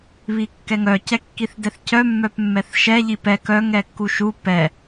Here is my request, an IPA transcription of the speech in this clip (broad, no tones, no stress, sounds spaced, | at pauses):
β i kː ɛ ŋ œ c ɛ kː i θ d ɛ θ c œ mː œ p mː ɛ θ ʃ ɛ ʎ i p ɛ k œ ŋ ɛ kː u ʃ u p ɛ